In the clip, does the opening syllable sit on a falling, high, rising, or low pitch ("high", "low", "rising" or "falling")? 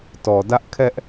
low